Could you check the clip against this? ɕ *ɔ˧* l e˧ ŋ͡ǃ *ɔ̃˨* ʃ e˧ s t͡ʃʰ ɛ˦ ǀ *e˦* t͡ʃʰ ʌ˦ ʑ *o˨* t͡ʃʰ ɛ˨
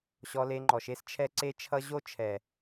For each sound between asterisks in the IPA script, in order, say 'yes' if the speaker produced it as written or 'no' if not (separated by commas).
yes, no, yes, no